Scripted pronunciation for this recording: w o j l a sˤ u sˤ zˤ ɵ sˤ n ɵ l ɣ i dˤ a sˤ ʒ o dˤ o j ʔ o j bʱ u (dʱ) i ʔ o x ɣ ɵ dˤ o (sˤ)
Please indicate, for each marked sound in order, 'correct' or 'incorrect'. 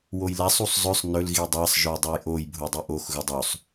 incorrect: dˤ, correct

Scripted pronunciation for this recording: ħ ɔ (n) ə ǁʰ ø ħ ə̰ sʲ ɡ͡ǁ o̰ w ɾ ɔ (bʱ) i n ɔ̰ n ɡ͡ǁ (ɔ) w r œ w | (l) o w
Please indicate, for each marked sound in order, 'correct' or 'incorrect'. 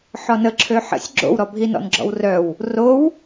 correct, correct, incorrect: ɔ̰, incorrect: r

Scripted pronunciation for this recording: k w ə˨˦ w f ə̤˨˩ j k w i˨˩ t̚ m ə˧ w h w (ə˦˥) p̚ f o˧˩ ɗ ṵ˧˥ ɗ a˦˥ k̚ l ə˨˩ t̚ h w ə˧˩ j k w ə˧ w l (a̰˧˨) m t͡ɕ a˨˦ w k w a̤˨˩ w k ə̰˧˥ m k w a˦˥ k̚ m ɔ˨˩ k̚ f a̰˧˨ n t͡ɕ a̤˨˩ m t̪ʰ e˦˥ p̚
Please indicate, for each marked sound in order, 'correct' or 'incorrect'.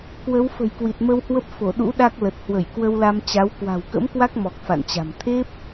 correct, incorrect: a˧

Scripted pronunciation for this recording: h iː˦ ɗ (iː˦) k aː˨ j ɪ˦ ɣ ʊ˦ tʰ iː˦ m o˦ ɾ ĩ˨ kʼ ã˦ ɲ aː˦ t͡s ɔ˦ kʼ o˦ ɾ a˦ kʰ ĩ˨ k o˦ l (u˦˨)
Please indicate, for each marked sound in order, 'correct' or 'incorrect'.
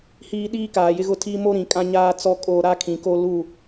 correct, correct

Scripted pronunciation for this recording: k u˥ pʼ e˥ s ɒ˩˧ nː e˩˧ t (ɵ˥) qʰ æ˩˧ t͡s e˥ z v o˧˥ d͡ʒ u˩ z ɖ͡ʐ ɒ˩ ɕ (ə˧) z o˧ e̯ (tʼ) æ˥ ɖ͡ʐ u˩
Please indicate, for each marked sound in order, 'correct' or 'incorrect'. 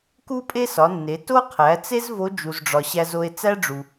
incorrect: o˥, incorrect: æ˧, incorrect: t͡s

